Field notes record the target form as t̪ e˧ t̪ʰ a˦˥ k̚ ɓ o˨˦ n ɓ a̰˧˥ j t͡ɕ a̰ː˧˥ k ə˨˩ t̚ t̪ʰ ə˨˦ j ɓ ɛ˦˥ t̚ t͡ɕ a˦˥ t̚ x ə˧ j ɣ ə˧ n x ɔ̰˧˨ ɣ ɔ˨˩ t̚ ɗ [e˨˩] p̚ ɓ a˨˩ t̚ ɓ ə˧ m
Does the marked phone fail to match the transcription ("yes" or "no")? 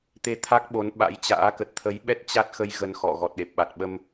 no